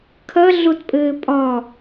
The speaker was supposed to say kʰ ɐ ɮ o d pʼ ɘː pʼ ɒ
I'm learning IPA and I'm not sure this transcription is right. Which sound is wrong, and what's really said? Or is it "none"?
d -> t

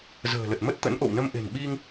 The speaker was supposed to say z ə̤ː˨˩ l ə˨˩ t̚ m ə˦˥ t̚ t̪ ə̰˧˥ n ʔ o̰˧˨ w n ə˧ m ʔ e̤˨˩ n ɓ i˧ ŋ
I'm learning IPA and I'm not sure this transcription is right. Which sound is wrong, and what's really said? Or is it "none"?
none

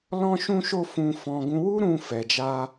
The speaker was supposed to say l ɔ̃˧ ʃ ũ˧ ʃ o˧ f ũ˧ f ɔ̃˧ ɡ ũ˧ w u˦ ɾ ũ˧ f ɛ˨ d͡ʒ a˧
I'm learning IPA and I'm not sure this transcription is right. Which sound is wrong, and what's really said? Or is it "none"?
none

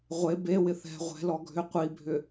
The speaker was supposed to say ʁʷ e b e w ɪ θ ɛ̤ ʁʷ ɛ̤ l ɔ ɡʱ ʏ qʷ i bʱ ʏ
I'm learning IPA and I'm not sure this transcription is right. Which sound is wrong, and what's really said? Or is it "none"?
none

